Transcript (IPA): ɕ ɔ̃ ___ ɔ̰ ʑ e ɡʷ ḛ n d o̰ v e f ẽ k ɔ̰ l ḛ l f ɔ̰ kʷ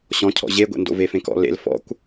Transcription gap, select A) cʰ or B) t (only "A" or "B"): A